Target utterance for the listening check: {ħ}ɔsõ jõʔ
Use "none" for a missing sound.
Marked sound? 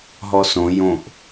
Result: ɦ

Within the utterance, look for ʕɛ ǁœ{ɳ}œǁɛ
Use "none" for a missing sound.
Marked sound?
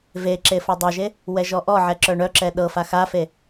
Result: ɳ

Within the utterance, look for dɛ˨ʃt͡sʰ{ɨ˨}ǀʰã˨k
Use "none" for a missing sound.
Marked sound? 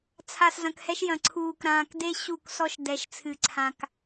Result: ɨ˨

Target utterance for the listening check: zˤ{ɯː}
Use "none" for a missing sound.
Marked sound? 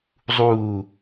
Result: uː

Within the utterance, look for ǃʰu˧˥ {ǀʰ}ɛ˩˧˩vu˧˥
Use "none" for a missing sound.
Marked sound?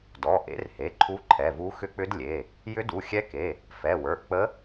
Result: ǃʰ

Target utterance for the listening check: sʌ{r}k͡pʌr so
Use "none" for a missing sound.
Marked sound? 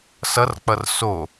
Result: r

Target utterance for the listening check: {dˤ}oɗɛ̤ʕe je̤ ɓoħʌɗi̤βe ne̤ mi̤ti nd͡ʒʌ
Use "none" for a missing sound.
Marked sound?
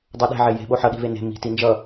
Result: dˤ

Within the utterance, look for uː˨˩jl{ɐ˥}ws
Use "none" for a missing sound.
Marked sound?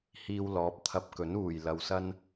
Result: ɐ˨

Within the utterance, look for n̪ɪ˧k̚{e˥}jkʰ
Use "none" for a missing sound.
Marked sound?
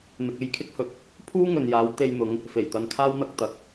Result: e˥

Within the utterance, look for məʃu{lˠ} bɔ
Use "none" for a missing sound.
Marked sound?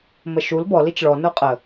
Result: l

